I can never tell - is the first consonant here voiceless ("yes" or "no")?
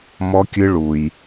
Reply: no